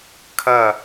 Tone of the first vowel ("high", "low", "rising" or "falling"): falling